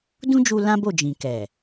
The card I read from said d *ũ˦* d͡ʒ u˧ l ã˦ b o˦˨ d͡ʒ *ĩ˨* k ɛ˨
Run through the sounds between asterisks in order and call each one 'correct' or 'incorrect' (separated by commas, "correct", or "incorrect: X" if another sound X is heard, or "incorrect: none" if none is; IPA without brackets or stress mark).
correct, correct